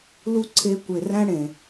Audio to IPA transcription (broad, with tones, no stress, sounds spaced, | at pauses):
l u˦ ǀʰ e˧ kʷ e˨ r æ̃˦ ɽ ẽ˨